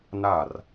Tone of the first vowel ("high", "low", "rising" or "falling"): falling